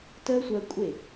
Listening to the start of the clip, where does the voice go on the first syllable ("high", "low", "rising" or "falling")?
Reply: high